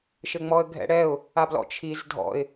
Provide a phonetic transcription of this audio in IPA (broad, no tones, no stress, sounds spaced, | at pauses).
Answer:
ʃ ɘ ŋ͡m ɔ ə̯ ɡʱ ɛ̰ ɽ ɛ ʊ̯ | a b l ɔ̰ t͡ʃʰ i z dʱ ɔ̰ ɪ̯